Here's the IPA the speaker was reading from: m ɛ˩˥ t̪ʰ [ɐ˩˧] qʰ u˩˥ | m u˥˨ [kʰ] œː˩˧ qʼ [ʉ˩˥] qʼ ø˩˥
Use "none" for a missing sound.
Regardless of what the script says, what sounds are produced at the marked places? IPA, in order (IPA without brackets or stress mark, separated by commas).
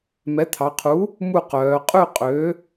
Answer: ɑ˩˧, q, ʉ˥˨